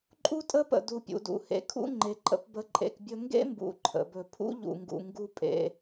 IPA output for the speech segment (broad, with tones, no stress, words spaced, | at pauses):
ǃʼu˦tʼə˦pə̰˨ du˨ pʲṵ˨dṵ˨hḛ˨˦kʰṵ˦ ŋ͡ǃe˨ǃʼə̰˧p bə˧ ǃʼḛ˧kbʲɵ˦ ŋɡḛ˦mbṵ˨ ǃʰə̰˨bɵ˨ pʰṵ˦ʎṵ˨ŋɡṵ˨ ŋɡu˦pʼḛ˧